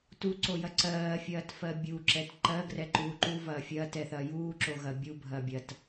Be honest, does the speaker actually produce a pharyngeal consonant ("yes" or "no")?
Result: no